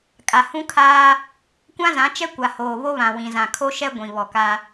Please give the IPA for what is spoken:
kʼ a˨ h ũ˦ kʰ aː˦ | kʷ ã˦ z ã˨˦ t͡ʃ ɛ˦ kʷ a˨ h oː˨ β o˦ β ã˨ w ĩ˨ z ã˨ kʰ o˦ ʃ ɛ˦ ɡʷ ĩ˨ β ɔ˨ k a˦

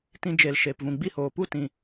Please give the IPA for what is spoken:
t ĩ˧ d͡ʒ e˨ l ʃ eː˨ p v ũ˨ ɡ͡b i˦˨ h oː˨ p u˦˨ t ĩ˨

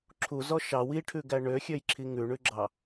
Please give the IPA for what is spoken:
ǁʰ u z ɔ ʃ ɑ w i ʈʰ ʉ ɡ æ ɳ ø xʲ ø j ǁʰ i ŋ ʉ ɳ ʉ ɡ͡ǁ ɑ

